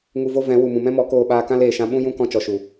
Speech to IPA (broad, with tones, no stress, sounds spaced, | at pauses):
ŋ u˧ v o˦ v ɛ̃˨˦ w u˨ m ũ˨ m ɛ̃˦ m ɔ˨˦ k oː˧ ɓ aː˧ k ã˦ l eː˨ ʃ ã˦ ɓ ũ˦ j ũ˦ k ɔ̃˧ t͡ʃ ɔ˨ ʃ u˨